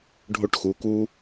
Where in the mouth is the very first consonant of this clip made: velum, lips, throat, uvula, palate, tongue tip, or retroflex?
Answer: retroflex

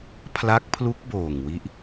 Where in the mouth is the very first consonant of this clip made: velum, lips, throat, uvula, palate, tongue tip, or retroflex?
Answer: lips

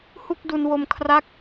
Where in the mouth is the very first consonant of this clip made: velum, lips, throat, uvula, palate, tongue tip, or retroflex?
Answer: throat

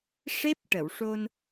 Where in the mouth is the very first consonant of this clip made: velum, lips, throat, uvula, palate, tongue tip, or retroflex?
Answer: retroflex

